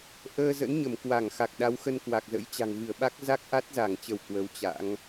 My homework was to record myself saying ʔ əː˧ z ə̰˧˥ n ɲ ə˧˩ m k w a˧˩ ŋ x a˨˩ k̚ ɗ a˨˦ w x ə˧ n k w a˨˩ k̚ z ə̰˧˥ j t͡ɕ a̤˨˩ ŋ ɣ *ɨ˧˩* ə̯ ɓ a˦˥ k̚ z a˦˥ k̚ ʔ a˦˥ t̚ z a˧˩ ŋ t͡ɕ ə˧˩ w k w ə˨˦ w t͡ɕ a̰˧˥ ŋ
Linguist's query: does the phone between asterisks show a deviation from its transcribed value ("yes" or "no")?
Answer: no